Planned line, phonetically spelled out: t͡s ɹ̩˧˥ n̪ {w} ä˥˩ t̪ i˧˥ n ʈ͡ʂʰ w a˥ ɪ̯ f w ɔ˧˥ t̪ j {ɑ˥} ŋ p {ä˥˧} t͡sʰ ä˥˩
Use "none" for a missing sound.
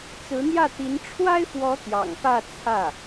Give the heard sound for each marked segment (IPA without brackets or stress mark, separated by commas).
j, ɑ̰˨˩, ä˥˧